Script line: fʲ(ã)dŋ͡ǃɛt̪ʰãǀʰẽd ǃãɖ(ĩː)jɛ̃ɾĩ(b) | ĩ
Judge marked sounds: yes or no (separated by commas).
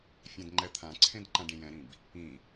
yes, no, yes